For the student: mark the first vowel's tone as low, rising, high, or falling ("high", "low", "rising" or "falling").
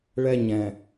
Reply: high